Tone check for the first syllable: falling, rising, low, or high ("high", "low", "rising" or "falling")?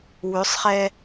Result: rising